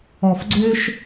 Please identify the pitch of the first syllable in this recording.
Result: low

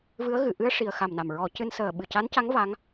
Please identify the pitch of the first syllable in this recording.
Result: rising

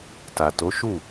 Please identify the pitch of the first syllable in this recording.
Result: low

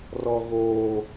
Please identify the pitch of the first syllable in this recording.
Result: low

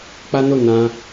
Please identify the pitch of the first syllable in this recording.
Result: high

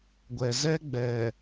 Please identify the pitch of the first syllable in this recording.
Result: low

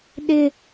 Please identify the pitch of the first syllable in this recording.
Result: high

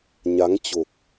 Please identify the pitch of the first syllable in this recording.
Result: rising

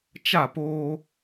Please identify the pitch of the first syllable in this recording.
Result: falling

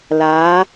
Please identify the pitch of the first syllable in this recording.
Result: rising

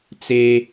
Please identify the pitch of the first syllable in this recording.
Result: high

